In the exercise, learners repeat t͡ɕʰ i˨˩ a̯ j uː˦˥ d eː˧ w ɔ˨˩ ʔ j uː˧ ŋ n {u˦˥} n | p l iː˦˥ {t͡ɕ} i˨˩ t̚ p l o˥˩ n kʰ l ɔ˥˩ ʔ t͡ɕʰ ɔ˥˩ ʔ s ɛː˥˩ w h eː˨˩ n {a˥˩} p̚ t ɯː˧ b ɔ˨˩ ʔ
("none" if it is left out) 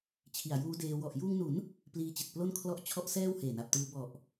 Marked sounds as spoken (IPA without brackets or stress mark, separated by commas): u˩˦, t͡ɕ, a˨˩